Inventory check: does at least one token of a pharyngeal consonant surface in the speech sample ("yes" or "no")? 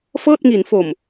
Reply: no